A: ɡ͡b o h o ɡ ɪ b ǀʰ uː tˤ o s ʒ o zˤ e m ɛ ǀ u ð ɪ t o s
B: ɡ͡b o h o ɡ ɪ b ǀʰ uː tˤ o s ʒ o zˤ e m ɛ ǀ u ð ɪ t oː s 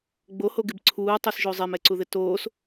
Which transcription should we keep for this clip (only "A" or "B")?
B